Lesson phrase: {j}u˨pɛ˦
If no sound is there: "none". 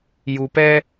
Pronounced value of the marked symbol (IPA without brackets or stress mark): j